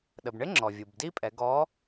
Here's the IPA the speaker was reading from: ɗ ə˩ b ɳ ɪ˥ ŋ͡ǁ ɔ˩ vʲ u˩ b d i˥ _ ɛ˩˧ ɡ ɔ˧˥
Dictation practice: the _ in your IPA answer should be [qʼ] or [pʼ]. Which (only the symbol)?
pʼ